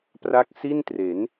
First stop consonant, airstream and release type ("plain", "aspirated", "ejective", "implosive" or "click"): plain